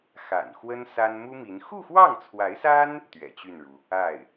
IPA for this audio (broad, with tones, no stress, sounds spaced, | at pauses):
x a̰˨˩ n x w ə˥ n s a˥ n m u˥ m i˧˥ n x u˥˧ x w ɑ˥˩ ŋ t͡sʰ w a˧˥ ɪ̯ s a˥ n | t̪ ɥ ɛ̰˨˩ t͡ɕ y˥˩ n ɻ u˩ | a˥˩ ɪ̯